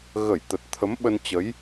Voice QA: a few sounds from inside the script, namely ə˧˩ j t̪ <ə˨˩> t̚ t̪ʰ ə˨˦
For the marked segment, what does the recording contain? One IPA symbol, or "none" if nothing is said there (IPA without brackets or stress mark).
ə˨˩